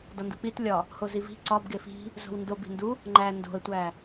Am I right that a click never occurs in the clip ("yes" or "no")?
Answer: no